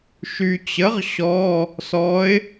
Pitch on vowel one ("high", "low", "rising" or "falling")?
low